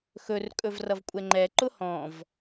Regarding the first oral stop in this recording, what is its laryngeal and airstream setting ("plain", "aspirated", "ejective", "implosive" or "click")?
ejective